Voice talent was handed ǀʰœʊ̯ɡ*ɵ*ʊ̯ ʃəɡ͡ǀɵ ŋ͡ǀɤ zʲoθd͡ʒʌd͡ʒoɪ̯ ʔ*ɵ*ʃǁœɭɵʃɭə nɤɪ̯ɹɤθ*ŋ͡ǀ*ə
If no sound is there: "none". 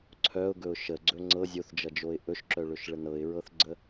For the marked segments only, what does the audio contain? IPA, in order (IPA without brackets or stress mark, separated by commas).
ɵ, ɵ, ɡ͡ǀ